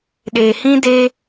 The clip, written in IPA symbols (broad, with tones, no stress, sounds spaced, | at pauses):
ɗ e˨ h ĩ˦ d eː˦